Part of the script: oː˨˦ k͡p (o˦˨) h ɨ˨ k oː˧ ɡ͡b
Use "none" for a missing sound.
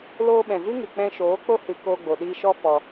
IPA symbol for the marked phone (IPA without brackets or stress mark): o˦